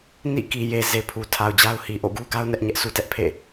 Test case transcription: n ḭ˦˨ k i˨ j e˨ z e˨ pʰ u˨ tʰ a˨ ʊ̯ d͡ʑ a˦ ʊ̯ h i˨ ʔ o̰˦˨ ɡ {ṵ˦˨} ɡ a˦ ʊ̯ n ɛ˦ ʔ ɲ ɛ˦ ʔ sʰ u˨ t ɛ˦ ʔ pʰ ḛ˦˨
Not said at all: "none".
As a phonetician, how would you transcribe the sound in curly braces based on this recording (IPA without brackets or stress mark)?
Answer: u˦